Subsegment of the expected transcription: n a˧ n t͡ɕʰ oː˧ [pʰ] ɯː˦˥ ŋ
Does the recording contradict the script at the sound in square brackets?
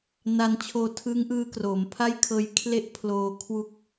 yes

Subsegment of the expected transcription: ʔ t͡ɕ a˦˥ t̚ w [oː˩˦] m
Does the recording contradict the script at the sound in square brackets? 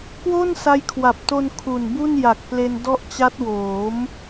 no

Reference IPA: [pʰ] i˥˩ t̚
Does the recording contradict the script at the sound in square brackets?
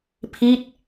no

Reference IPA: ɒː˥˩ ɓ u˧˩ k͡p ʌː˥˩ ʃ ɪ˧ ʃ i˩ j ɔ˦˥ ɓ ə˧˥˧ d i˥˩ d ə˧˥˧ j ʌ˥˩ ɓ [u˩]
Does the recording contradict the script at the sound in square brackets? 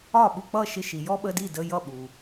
no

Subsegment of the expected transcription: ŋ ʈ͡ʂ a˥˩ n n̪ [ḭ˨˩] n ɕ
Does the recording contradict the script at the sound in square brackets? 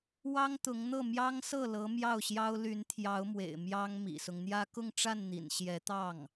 no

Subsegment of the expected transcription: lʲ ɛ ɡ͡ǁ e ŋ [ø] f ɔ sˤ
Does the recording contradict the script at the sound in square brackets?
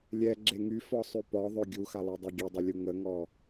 yes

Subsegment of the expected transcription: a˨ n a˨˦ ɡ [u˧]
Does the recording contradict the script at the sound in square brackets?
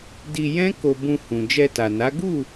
yes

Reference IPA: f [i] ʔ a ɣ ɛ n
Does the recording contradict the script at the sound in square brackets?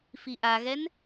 no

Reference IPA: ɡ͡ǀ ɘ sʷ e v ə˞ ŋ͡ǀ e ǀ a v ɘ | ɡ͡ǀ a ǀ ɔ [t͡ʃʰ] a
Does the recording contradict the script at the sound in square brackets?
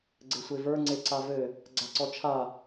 no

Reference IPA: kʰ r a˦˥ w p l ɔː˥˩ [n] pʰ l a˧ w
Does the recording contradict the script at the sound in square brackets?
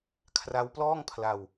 yes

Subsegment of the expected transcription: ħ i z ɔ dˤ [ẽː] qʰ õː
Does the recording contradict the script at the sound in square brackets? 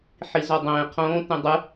no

